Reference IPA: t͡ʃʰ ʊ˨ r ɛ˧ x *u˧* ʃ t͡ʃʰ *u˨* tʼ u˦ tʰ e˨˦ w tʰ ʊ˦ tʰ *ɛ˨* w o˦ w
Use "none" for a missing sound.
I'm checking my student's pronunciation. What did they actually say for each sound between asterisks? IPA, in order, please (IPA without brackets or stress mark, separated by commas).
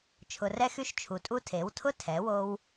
y˧, u˨, ɛ˨˦